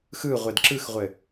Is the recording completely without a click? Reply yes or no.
no